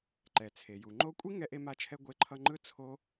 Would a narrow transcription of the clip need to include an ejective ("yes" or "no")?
yes